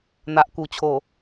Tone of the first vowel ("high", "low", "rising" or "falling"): low